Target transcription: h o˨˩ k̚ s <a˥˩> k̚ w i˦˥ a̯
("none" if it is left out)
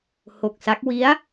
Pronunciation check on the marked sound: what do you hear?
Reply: a˦˥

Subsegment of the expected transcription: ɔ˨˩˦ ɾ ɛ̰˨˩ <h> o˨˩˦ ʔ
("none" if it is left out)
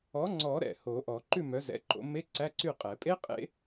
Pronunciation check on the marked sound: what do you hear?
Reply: h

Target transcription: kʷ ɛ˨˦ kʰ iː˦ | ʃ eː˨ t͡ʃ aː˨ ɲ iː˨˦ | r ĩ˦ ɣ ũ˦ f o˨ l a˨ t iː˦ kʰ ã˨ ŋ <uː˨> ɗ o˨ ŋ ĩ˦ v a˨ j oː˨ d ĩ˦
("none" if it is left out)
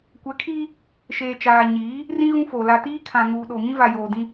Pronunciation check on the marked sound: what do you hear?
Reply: uː˨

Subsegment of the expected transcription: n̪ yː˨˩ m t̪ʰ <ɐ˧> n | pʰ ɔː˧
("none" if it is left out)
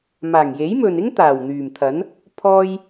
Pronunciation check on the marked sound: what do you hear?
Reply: ɐ˨˥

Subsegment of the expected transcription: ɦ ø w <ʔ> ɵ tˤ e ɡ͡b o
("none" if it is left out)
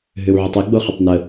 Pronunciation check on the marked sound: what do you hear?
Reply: ʕ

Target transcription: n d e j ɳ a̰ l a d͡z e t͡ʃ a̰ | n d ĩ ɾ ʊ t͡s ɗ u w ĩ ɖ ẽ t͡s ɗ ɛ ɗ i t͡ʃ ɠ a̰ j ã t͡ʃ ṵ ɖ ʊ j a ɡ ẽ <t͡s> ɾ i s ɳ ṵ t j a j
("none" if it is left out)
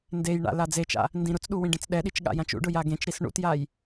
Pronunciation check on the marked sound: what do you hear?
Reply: t͡ʃ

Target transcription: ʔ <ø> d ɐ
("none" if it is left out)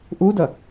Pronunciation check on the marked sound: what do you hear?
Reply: u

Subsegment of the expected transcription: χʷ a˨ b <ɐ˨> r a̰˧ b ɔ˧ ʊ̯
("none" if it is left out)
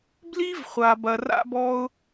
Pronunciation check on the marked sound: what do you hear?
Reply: ɐ˨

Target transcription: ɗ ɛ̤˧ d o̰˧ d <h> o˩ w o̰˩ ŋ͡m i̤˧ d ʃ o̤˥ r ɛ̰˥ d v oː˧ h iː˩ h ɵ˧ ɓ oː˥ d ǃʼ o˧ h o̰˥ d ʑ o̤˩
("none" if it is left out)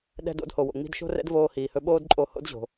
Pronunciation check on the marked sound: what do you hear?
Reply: h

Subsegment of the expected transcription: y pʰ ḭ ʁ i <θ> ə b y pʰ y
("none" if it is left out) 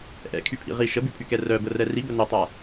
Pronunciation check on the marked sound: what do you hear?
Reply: ʃ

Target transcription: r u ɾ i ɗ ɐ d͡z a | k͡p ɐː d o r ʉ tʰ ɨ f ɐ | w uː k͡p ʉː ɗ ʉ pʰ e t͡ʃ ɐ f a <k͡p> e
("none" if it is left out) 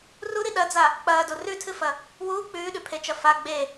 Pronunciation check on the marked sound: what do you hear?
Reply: ɡ͡b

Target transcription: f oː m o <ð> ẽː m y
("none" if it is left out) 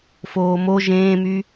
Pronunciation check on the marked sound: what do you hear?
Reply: ʒ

